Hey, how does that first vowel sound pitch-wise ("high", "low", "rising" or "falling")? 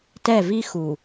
falling